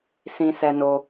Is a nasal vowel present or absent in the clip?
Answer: present